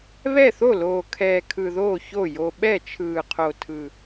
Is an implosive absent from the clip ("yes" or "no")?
no